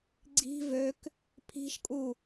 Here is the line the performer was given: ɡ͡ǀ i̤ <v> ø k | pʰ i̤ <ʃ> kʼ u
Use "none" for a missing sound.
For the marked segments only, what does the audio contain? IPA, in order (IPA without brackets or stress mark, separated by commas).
v, ʃ